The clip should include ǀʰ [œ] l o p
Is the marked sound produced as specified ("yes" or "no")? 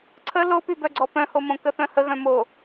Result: no